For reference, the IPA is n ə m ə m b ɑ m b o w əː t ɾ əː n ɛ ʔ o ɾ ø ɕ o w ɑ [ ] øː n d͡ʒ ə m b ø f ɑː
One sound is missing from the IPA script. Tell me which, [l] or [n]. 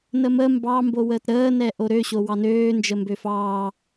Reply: n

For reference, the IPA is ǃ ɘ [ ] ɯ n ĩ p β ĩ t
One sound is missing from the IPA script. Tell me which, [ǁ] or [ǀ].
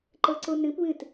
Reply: ǀ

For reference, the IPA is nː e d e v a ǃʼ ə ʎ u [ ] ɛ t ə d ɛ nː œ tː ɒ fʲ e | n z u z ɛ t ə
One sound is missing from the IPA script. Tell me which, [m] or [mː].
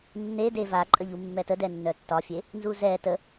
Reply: mː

